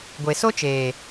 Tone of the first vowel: low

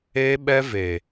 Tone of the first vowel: high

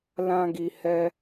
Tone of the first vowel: high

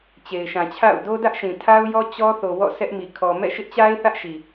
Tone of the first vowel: low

